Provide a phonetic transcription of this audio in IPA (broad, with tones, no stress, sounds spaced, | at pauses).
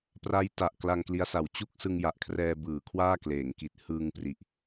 p r a˦˥ j t a˨˩ ʔ k l a˧ ŋ k l i˦˥ a̯ s a˨˩ w t͡ɕ u˥˩ k̚ s ɯ˧ ŋ j a˨˩ ʔ kʰ r ɛː˧ b ɯː˩˦ kʰ w aː˥˩ k l eː˩˦ ŋ k i˨˩ t̚ h ɯː˧ ŋ p r i˨˩ ʔ